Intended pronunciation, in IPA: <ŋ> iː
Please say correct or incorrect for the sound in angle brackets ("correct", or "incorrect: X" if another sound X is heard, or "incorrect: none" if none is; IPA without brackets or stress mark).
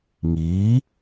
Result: correct